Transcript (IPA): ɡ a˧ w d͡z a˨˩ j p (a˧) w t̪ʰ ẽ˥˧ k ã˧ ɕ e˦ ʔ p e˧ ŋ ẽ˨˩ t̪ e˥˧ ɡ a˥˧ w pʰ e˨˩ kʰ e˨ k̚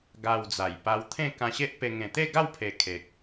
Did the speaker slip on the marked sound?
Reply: no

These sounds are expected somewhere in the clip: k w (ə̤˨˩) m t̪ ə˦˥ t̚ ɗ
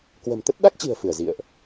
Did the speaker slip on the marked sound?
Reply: no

